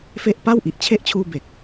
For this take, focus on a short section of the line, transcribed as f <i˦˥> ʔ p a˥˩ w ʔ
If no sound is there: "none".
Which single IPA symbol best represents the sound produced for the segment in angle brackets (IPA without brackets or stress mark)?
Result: e˦˥